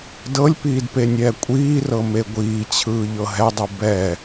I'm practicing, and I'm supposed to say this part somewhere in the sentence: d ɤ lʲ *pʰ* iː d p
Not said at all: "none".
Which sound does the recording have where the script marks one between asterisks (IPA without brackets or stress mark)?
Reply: p